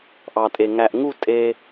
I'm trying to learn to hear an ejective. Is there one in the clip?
yes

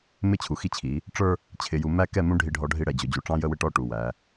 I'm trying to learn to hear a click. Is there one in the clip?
no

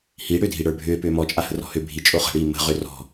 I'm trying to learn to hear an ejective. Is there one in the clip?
yes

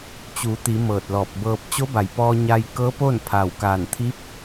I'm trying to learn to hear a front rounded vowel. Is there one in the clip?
no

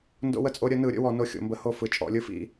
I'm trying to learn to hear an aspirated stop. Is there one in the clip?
no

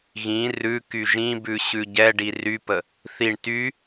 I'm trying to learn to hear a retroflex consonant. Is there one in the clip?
yes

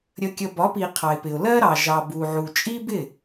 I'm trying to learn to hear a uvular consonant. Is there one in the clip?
yes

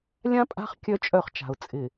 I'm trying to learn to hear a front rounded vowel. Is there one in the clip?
yes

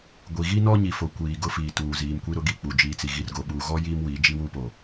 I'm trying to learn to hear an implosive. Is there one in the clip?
yes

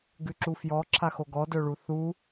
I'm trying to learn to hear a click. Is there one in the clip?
yes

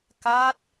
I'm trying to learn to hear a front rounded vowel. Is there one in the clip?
no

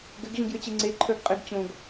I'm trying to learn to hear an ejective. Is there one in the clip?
yes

